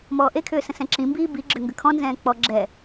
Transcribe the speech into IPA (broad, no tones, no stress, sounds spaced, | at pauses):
m ɔː ʔ e kʰ ʏː s ə̃ s ɛ̃ ǁ ĩ m b iː b i ɡ͡ǁ ʏ ŋ ɡ ə kʰ ɔ̃ n z ɛ̃ː k͡p ɔ ɡ͡ǁ ɛ